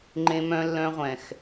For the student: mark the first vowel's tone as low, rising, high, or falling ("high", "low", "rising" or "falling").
high